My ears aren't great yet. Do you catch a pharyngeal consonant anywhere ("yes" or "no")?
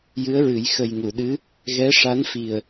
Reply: no